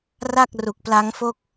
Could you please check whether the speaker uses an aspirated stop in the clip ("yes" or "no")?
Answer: no